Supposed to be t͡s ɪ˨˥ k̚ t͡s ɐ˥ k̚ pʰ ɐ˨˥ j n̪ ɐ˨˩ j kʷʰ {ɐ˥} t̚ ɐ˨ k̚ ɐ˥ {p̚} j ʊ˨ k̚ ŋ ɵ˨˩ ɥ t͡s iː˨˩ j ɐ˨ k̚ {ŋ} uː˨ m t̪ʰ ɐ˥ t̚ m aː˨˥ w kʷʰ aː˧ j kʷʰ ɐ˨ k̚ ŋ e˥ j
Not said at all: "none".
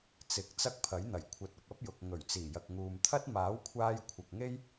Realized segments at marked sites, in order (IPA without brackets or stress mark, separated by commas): ɐ˨˥, p̚, ŋ